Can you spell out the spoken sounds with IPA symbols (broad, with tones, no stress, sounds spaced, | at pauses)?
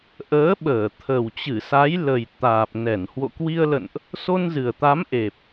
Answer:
ʔ əː˨˦ ɓ əː˧˩ t̪ʰ ə˨˩ w t͡ɕ ɨ˧˩ s a˨˦ j l ə˨˩ j t̪ aː˨˩ p̚ n ɛ˧˩ n h w o̰˧˨ k w i˧ ə̯ l ə̰˧˨ n ʔ | s o˧ n z ɨ˨˩ ə̯ t̪ a˨˦ m ʔ e˨˩ p̚